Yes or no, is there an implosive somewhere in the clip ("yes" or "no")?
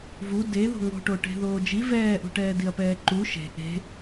no